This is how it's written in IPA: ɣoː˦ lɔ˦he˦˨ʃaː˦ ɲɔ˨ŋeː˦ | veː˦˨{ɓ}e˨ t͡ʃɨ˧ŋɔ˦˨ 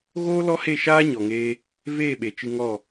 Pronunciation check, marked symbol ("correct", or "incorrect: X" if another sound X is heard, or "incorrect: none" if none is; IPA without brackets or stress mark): correct